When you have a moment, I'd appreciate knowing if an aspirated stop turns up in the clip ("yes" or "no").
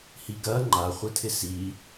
yes